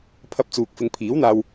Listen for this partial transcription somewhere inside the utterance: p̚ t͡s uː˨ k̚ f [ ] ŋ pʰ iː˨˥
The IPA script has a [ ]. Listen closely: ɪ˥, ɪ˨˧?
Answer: ɪ˨˧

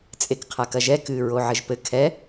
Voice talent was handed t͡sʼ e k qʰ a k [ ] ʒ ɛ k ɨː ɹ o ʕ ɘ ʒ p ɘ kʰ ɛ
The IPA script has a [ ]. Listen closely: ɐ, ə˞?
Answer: ɐ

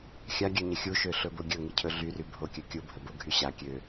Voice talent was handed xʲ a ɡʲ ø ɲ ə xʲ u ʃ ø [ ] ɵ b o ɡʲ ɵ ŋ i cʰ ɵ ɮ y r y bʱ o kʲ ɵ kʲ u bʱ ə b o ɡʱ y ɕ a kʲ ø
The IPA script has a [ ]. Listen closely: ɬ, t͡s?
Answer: ɬ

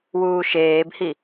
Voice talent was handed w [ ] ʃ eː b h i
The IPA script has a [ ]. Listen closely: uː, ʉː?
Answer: uː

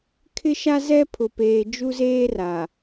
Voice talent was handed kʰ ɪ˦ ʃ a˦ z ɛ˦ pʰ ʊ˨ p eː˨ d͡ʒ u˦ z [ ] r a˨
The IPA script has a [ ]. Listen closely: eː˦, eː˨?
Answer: eː˦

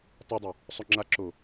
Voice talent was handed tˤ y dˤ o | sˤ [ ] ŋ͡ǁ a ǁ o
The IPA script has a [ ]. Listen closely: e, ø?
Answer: ø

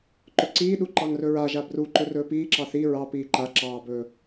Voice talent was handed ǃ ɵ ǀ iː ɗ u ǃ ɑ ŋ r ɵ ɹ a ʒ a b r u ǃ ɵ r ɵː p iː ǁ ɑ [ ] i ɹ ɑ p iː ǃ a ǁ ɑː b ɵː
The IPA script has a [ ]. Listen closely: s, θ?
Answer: θ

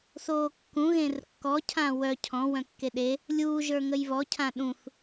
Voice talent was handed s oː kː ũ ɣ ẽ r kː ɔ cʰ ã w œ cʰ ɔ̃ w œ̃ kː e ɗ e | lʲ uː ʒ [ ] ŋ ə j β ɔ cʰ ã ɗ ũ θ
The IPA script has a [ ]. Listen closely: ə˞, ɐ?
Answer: ə˞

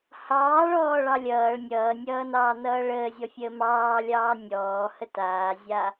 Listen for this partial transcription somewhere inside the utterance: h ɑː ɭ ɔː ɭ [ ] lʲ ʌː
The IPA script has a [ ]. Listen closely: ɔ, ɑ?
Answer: ɑ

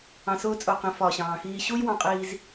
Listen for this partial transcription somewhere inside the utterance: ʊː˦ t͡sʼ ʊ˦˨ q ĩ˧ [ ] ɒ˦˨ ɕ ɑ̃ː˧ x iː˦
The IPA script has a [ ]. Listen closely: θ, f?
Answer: f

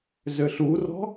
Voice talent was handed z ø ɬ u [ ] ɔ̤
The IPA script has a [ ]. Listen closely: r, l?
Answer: r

